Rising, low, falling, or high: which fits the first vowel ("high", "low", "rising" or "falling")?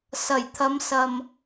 low